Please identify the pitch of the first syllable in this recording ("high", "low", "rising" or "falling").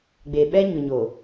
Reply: low